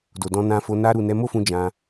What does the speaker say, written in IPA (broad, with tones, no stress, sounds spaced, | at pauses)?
d o˨ d ɔ̃˧ n ã˧ f o˧ n a˦ ɾ u˦˨ n ɛ˧ m o˦ f ũ˧ d͡ʒ ã˧